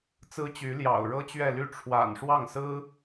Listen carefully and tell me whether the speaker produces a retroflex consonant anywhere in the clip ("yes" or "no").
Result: yes